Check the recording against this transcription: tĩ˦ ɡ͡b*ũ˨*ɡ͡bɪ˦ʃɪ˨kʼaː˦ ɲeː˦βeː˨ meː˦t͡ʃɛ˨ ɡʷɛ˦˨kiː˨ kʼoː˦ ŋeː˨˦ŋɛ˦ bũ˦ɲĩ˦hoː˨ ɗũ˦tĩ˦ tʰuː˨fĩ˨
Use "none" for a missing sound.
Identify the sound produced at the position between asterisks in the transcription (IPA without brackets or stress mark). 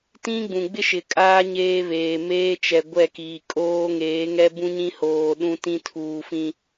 ũ˨